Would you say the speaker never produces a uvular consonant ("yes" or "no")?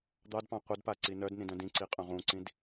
no